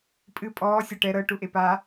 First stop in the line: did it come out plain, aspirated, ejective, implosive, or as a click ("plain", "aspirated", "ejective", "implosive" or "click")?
ejective